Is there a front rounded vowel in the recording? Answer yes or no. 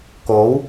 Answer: no